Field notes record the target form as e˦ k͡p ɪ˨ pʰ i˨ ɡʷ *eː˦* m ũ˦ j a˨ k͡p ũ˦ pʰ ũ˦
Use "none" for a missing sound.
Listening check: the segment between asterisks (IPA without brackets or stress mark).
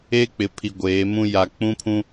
eː˨˦